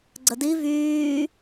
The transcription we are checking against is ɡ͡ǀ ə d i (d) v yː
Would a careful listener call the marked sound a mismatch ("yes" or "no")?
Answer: yes